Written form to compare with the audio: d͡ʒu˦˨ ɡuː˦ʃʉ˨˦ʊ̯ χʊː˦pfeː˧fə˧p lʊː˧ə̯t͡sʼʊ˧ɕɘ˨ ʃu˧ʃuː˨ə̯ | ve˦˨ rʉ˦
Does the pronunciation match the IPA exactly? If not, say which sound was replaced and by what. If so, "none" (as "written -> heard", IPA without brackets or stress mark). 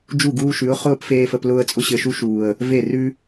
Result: none